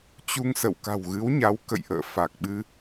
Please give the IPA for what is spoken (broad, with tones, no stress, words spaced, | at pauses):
t͡ɕu˧ŋsə̰˧˨w ka̤˨˩wɣɨ˨˦wɲa˨˦w kə̰˧˨jʔə̰ː˧˨fa˨˩k̚ɓɨ˧